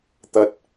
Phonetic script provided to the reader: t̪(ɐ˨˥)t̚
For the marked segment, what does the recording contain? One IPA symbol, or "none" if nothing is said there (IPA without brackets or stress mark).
ɐ˥